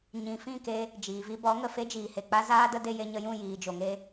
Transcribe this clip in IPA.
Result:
ɲ ĩ˨ f ĩ˦˨ k e˧ | d͡ʒ iː˨ v i˧ b ɔ˨˦ ŋ ə˨ f e˦ d͡ʒ iː˨ h e˨ k͡p a˦ z aː˧ d ə˧ d e˧ j e˧ ɲ ə˧ j ũ˦˨ j iː˨ d͡ʒ o˨ ŋ e˧

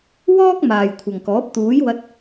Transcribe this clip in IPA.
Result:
w ɔː˥ k̚ m aː˨ j kʷʰ ɐ˨ ŋ k ɔː˨˥ p̚ t̪ uː˨˥ j w ɐ˧ t̚

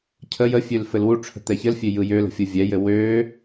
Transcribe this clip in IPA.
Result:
cʰ ə j ə fʲ ø l f ɘ l w u ʈ͡ʂʰ ə̤ t̪ ɛ ç ɘ l fʲ ø j ɯ j ø l ə̤ fʲ ɯ vʲ ɛ j ɘ w ø

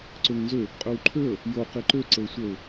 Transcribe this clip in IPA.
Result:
ǀ ø ŋ n z ø | qʼ ø w ǃʰ ø ə̯ | j o q i ǃ ø ǀ ə ʊ̯ sʷ ə ʊ̯

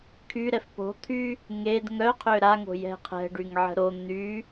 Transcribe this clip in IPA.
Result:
kʰ y ɾ ɛ f p o̤ t̪ʰ y | ŋ e d ŋ œ qʰ ø ɾ a ŋ o̤ j ɛ̤ qʰ ɛ̤ ɖ y ŋ ʕ ə̤ ɾ o n̪ y

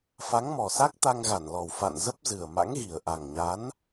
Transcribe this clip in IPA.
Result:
f a˨˦ ŋ m ɔ˨˩ s a˦˥ k̚ t̪ a˧ ŋ ɣ a˧˩ n l ɔ˨˩ w f a̰˧˨ n z ə˦˥ p̚ z ɨ˨˩ ə̯ m a̰˧˥ ŋ ɣ i˨˩ ə̯ ʔ a˨˩ ŋ ɲ a˨˦ n

